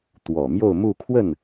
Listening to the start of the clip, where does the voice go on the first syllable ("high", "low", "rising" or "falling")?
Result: low